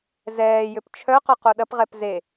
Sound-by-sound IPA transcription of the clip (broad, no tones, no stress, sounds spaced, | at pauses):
z ɛː j ʏ p t͡ʃʰ œ q œ q o ɗ ɐ p ʁ ɛ p z e